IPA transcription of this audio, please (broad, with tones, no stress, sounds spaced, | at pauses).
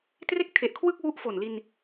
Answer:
t r e˥˩ k̚ tʰ e˨˩ ʔ kʰ w ɯ˥˩ k̚ w u˦˥ ʔ f o˨˩ n l i˧ n